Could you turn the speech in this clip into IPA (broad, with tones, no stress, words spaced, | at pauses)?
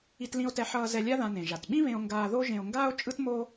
i˧tlĩ˧o̯tɛ˧ħʌː˧ zɛ˧lʲa˥ðã˧nẽ˩ ʒa˩tɓĩ˥βẽ˧o̯ŋɡaː˧ ðo˥ʒẽ˧o̯ŋɡaː˥o̯ t͡ʃʼɯ˥tmo˥